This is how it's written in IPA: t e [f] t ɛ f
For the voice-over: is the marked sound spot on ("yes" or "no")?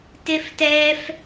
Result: yes